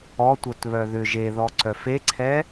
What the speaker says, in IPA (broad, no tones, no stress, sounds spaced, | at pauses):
ɔ tʷ œ t β œ ð ʏ ʒ e ð ɔ ǀ œ f e ǀʰ ɛ